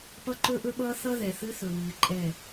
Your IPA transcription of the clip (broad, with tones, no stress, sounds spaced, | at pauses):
p ʌ˦ ǃ ɵ˦ ʔ ɵ˦ ɓ ʌː˦ θ ʌ˦ ð ɛ˨ θ ɨ˦ θ ɵ˨ β ɨː˨ ǃʼ ɛ˦˨